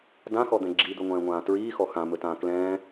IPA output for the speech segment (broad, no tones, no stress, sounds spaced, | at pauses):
d ã x ɔ d̪ ɛ̃ ɡ͡ǁ i d̪ ɵ ŋʷ ɛ̃ː ŋʷ ãː t ɹ iː x ɔ x ã m ɵ t ãː k l ɛ̃ː